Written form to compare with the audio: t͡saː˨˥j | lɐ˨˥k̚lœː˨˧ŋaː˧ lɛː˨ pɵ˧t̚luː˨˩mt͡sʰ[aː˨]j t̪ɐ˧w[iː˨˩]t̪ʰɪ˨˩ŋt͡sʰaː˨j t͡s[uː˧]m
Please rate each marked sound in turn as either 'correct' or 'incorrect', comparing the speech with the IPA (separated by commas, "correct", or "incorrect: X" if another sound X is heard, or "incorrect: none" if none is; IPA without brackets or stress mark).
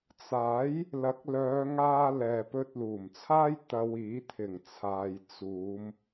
incorrect: aː˥, incorrect: iː˨˥, incorrect: uː˨˧